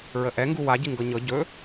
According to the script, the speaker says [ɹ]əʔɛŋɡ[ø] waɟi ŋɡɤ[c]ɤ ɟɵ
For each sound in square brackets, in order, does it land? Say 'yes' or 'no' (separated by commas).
yes, no, no